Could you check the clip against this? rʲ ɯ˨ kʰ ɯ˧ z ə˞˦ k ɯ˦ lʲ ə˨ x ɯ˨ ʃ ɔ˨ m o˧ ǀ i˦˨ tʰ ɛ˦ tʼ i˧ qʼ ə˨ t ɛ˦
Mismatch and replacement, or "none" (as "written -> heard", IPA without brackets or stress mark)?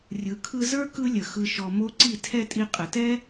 none